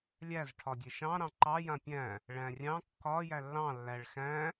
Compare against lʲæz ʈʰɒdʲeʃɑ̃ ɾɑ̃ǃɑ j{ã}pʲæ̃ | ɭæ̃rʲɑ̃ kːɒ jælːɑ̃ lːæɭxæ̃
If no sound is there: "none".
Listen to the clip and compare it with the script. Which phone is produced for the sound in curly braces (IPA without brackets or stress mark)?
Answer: ã